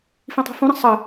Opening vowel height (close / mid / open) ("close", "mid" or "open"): close